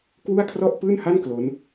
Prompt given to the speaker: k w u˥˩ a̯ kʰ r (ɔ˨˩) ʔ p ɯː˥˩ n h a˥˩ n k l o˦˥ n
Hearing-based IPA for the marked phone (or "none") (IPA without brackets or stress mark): ɔ˥˩